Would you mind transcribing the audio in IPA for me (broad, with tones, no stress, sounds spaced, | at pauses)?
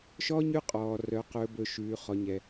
ʃ ɔː˦ ɲ ʉ˦ qʼ ɔː˧ r œ˧ q ɵː˧ b ɵ˧ ʃ ʉː˧ χ ɔ˧ ɲ ɛ˧